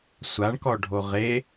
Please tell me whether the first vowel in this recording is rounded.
no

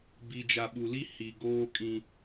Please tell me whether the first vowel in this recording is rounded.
no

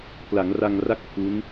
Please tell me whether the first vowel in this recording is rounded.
no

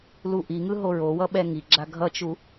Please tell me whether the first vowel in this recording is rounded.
yes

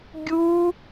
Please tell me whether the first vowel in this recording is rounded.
yes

